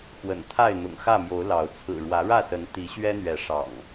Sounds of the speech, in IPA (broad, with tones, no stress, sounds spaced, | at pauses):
x w ə̰˨˩ n t̪ʰ a˥˨ ɪ̯ n̪ ʊ̰˨˩ ŋ x ä˥˨ m j o˨˦ ʊ̯ l ɑ˨˦ ʊ̯ t͡sʰ ɹ̩˨˩ ɻ w ä˨˦ ɻ ä˥˨ s ə˨˦ n t̪ i˨˦ ɕ ɥ ɛ˦ n̪ ɥ ɛ˨˦ ʂ ɑ̰˨˩ ŋ